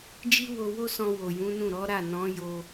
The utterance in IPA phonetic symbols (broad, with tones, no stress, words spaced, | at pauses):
d͡ʒi˦wo˧wo˦sɔ̃˧ wo˨jũ˨˦nũ˦˨ ɾɔ˨˦ ɾa˦˨ nɔ̃˨˦ jo˦